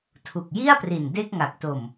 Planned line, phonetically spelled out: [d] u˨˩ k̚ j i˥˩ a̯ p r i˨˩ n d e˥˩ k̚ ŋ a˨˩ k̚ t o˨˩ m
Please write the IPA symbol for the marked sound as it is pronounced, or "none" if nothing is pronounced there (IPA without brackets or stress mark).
tʰ